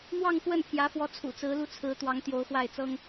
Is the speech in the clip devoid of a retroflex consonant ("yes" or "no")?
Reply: yes